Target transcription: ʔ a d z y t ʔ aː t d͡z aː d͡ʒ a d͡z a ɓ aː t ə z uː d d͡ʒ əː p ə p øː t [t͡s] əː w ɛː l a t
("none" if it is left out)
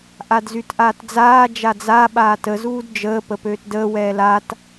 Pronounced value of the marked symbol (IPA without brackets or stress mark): d